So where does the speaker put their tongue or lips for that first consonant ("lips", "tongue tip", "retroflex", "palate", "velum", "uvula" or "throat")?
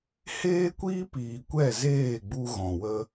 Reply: throat